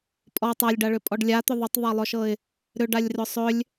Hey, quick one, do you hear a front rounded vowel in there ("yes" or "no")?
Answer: yes